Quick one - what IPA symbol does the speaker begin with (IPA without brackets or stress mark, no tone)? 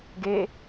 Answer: ɡ